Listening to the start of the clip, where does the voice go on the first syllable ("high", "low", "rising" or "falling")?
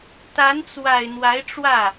rising